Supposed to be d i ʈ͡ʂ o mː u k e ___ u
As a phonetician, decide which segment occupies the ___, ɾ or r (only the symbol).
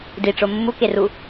r